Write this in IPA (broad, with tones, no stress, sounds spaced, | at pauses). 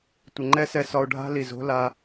tʷ ə˨ ŋ͡ǃ ɛ˦ s ɛ˧ s ɒ˧ o̯ ɖʱ a̤˦ l i˨ z o̤˦ l a˧